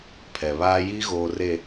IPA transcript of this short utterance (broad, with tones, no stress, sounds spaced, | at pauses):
pʰ ɛ˨ β aː˦ j i˦ ɣ oː˨ r e˨